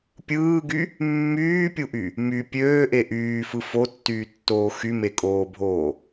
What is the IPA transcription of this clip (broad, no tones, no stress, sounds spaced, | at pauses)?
pʲ ɯː ɡ y | mː yː pʲ u ʔ y | m y pʲ øː ʔ e ʔ yː f ɯ f o tː yː tː oː x y m e kʼ oː bʱ oː